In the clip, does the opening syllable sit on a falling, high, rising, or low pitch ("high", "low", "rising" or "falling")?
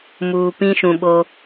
low